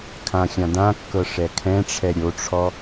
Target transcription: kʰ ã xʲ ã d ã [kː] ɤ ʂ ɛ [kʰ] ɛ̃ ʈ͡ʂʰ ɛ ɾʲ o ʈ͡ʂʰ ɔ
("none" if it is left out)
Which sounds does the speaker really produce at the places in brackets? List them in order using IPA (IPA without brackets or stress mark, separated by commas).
kː, kʰ